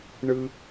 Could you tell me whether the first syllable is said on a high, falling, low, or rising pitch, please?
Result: high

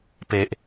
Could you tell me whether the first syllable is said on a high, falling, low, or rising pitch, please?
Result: low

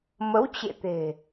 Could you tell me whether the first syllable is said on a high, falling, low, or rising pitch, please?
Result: rising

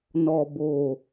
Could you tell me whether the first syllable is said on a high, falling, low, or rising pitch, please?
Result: low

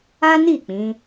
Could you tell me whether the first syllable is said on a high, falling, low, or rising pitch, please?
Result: high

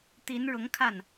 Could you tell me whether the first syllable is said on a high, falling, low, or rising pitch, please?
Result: rising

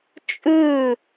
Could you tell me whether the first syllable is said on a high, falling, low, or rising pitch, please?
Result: falling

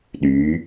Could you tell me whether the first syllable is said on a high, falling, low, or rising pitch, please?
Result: rising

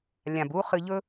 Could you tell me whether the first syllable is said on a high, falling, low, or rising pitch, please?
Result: low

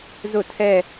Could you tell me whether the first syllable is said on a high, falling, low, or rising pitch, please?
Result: falling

